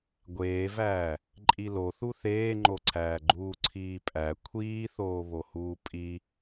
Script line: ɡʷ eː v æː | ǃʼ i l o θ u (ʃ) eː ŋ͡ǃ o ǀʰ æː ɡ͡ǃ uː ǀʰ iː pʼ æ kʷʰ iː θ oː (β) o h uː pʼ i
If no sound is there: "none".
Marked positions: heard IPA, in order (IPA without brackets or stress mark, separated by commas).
θ, β